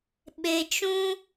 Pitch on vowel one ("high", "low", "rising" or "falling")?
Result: low